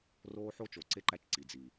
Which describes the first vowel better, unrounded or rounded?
rounded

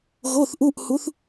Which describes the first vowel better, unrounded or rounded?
rounded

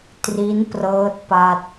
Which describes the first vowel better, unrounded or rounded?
unrounded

